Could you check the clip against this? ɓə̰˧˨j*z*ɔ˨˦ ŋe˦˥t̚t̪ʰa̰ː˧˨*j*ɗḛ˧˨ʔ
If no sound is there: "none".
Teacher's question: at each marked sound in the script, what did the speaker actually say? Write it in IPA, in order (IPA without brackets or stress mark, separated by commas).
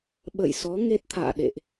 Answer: s, none